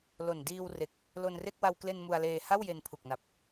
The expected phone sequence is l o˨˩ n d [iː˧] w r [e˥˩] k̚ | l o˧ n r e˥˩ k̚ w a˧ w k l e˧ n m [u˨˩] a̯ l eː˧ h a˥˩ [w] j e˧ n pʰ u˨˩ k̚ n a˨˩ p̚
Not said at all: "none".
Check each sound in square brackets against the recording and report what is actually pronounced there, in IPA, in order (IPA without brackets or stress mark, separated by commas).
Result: iː˧, e˨˩, u˧, w